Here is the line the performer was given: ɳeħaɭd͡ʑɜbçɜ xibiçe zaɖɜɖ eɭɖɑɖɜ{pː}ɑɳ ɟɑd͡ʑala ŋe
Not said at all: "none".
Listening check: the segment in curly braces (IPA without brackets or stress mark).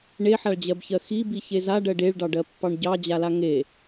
pː